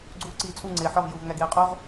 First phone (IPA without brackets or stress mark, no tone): ɡ͡ǀ